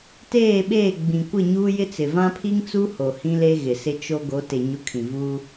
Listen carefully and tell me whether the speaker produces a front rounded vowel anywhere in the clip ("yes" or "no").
no